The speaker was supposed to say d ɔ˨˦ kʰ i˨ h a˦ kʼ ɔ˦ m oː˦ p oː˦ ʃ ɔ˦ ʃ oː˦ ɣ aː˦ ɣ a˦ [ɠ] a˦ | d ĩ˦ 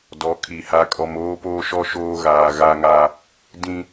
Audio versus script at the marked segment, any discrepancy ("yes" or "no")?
yes